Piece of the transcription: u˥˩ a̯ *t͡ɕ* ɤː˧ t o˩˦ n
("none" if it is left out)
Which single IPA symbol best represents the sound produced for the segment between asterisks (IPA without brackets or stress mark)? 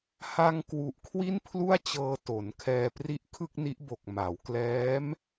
t͡ɕ